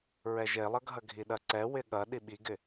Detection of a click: present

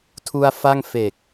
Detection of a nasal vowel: absent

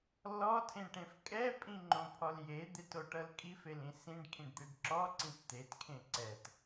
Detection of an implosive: absent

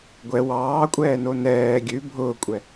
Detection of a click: absent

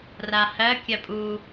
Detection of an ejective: present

